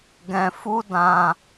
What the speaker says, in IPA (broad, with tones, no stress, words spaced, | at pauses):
ɡɛ̃˧ fu˦dã˧